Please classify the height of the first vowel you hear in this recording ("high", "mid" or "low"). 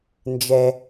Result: mid